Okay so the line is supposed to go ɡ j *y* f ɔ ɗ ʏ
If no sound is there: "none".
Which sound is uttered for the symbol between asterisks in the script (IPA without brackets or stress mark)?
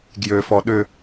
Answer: ø